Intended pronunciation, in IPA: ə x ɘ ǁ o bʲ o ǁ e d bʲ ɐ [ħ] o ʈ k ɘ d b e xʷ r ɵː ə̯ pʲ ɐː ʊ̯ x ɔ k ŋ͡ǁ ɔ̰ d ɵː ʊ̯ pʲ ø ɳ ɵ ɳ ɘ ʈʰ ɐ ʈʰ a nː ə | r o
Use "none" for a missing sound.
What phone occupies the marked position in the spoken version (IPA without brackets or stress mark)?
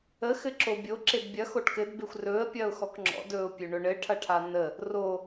x